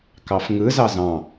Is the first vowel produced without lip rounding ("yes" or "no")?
yes